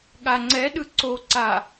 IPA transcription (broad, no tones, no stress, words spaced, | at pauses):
ɠaŋ͡ǀɛɗɯ ǀoǀa